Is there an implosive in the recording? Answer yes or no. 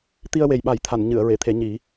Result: yes